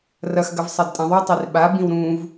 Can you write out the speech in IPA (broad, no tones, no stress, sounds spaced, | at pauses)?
r ɐ x ɡ ɐ v sˤ ɐ d tʼ ɐ̃ ðˤ u tˤ i r ɓ a b ĩ w ɾ ũ v